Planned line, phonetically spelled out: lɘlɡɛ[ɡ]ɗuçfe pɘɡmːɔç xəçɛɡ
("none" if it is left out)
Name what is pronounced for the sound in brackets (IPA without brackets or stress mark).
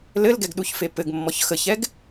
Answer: ɡ